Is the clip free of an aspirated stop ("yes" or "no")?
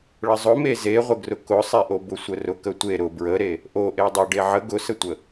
yes